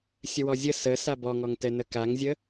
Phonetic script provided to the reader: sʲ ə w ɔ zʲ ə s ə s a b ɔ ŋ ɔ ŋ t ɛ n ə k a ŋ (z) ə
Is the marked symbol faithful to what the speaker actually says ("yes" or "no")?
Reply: no